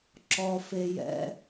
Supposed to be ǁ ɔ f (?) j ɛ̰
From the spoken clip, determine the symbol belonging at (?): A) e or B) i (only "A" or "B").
A